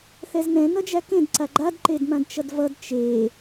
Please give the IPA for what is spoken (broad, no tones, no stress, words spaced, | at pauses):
θɛznɛ̃ nʌd͡ʒækẽd ǀaɡ͡ǃad ǃedmãdt͡ʃʌdvʌd t͡ʃe